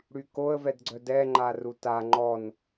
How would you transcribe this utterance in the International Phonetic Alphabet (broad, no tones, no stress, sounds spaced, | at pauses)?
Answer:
ɽ y k o ə̯ v ɛ d ɡ͡ǀ œ d ɛ ŋ͡ǃ a r u t a ŋ͡ǃ ɔ n